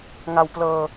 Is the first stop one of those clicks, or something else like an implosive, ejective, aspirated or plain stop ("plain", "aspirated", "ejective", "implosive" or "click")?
plain